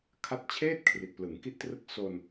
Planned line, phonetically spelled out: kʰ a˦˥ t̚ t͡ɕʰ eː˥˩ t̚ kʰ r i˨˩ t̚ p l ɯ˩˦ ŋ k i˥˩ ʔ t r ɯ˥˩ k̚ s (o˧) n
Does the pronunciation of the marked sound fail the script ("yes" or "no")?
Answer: no